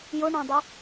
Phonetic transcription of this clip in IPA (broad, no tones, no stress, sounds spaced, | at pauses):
j ʊ ɳ ɑ̃ dˤ i